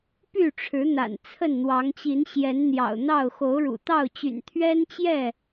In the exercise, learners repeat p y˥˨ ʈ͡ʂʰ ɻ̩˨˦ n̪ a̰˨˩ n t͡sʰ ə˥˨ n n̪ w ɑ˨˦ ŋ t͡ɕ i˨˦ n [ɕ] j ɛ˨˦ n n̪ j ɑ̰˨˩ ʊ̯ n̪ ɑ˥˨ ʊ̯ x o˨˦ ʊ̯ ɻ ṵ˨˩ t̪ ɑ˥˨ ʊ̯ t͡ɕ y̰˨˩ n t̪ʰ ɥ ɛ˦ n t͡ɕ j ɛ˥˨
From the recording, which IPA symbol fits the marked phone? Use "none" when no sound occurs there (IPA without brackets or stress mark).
ɕ